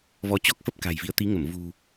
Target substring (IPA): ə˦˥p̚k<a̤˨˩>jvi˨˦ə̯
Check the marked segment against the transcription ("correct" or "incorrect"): correct